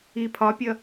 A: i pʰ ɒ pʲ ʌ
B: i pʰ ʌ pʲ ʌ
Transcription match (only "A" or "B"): A